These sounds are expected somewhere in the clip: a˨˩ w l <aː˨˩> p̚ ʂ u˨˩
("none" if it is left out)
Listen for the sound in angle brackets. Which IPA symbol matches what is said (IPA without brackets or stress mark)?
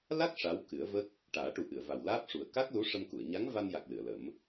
aː˦˥